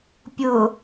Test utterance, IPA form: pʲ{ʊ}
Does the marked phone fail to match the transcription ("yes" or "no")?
no